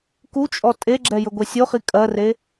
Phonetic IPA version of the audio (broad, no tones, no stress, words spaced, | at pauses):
kut͡ʃʼɔ tʼeɡ͡ǁɛjɵɡʷe sʲoχi kʼɜre